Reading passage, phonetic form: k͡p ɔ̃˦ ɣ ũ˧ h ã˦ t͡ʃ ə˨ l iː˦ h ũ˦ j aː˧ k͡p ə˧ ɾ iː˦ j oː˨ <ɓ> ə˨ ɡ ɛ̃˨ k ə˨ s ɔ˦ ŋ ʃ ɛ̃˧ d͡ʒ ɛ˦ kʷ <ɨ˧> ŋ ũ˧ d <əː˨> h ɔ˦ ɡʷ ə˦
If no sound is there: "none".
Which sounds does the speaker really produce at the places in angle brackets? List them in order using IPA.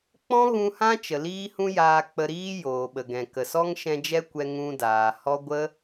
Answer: ɓ, ɛ˧, aː˨

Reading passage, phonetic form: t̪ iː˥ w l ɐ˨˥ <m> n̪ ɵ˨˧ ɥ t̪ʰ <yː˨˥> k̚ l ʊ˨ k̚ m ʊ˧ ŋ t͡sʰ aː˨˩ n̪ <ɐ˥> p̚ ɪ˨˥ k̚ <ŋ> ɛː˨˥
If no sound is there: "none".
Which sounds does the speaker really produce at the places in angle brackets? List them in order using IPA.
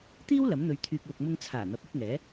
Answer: m, yː˧, ɐ˨˥, ŋ

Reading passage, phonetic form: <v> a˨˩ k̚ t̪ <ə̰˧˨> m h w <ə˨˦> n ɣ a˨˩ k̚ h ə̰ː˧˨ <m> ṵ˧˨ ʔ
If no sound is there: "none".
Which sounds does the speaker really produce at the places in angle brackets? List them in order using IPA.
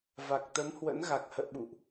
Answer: v, ə˨˦, ə̰˧˥, ɓ

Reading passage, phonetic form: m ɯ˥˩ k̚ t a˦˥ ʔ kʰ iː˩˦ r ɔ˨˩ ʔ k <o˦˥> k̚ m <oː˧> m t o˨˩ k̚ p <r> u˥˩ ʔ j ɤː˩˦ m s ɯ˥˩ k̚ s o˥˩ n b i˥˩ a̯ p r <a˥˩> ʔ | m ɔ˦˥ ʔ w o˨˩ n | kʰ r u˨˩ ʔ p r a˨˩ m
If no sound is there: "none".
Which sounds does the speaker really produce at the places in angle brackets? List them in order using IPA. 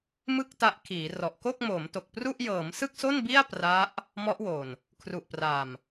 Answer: o˥˩, oː˩˦, r, a˦˥

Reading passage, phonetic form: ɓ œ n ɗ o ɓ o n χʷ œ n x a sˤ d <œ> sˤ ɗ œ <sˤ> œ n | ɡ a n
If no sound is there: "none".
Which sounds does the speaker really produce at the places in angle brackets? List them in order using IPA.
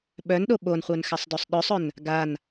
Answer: œ, sˤ

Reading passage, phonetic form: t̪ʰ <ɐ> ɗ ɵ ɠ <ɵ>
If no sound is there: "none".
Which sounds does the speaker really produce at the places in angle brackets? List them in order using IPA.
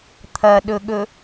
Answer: ɐ, ɵ

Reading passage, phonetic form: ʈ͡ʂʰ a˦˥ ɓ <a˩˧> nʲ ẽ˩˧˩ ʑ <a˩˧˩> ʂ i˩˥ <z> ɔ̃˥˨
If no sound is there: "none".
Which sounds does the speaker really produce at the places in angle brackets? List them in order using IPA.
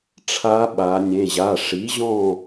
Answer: a˩˧, a˩˧˩, ʑ

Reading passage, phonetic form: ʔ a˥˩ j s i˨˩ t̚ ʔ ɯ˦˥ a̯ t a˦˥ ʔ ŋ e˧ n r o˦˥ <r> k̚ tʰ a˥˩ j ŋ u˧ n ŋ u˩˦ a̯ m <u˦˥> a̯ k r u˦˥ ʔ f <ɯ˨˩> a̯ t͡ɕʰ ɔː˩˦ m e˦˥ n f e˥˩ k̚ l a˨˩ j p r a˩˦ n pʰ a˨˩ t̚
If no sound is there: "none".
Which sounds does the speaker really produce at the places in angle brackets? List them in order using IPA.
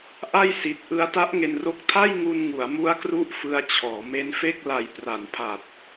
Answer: none, u˦˥, ɯ˧

